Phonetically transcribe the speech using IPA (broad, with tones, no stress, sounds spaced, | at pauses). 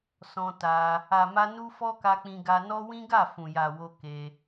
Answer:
s ɔ̃˧ t a˧ | a˨ m a˧ n u˦ f ɔ˦ k a˧ k͡p ĩ˧ ɡ a˧ n ɔ˦ w ĩ˦ ɡ a˦˨ f ũ˨ j a˨ w o˧ k e˧